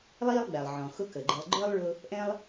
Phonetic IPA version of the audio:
lˠiː˦lˠɡ͡bæ˩lˠ ʕɔ̃˩xʊ˦ kə˩ɡ͡ǃɪ˨lˠɡ͡ǃə˞˦lˠ ɭʊ˥ | ʔɛ̃˥lˠ

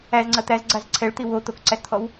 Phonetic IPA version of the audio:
æzŋ͡ǀɐ t̪æzɡ͡ǀaz ǀʰɛɭt̪i wo t̪okǀæst̪ʰɔw

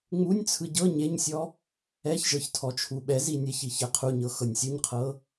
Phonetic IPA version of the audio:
ŋ͡munʲt͡sʰɯ ɟɤ ɲeɲsʲɔ | ɛçʒɤç tʰɔt͡ʃʰuɓɛzi nʲɛçiç ɛqʰuɲɤ xɤnʲsʲuɲqʰɤ

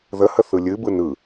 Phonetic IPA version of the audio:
ðəhə θɯlʲɨbɯ nɯ

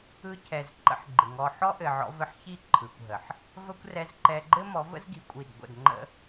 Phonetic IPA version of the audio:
ɯ˧cʰɛ˨z ǃə̰˦ħɡ͡ǃɪ˨ŋɔ˧ ħɔ˦ʔɘ˨ʕɔ̰˧ vɘ˧ħçi˦ ǃʰɯ˨kʷɦə˨ħ | və˦kʷ rɛ˧zǃɛ˧ɡ͡ǃɘ˦ mɔ˨˦və̰˦zɡi˨ kʷʼi˦˨d ɡʷə̰˦˨dŋ͡ǃə̰˦

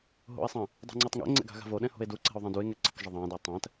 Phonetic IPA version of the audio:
ɦo̰e̯sˤɛ̃ | dˤṳŋ͡ǀatˤŋɛ̰ŋ͡ǀɛ̰ ɡa̤ɣa̤voɗɛ̃ ho̤e̯duǀɛ̤o̯ ðˤɛ̃due̯ŋɛ ǀək ʒəðˤæ̃dæ tˤæ̃t

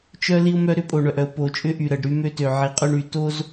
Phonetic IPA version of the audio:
t͡ʃœ˦ li˦ʊ̯mœ˦ ɾʏ˨˦pʼo˨ɳœ˨ʔœ˨ʊ̯ po˨t͡ʃʼʏ˦ ʔy˨ɾə˨ɖɾy˦mø˦ tø˨ʕi˨˦qʼœ˦ɳy˨ to˦z

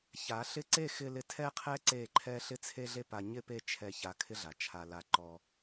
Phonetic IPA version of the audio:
ça˨˦ɬɪ˦ ǀe˦˨ xɪ˧ lɪ˧tʰɛ˦qʰɛ˦ ǀe˦˨ǃʰɛ˦ ɬɪ˦t͡sʰe˦ɮe˦ pa˧ ɲɪ˦˨pe˦˨ t͡ʃʰɛ˧ça˧ kʰɪ˦ɮa˨t͡ʃʰa˧la˧ ǃɔ˧

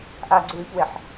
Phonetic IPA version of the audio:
ʔaɡ͡ǀʉːçweħ

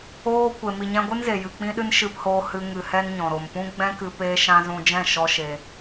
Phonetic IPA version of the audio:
oː˧kʷe˨ mi˨ɲɛ̃˧ɡʷɨ˦n ze˨jɨ˨ k͡pĩ˧ɗɨ˧n ʃɨ˧phoː˧hɨ˧ ŋɨ˨hɛ˧n ɲɔ̃˨ɾo˨mpũ˦ ɡ͡bɛ̃˦kɨ˧ peː˦ʃã˦ zũ˧d͡ʒɛ̃˦˨ ʃɔ˦ʃe˧

